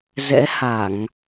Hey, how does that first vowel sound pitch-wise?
rising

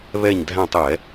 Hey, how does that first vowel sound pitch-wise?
falling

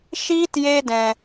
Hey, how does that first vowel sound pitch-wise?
high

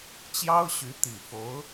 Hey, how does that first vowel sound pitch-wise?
high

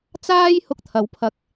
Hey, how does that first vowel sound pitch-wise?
high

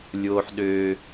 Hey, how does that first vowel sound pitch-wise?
high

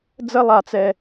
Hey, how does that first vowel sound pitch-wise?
high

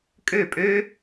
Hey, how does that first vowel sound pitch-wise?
falling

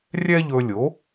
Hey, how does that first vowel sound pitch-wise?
high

